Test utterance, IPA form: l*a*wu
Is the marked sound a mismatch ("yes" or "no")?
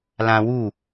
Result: yes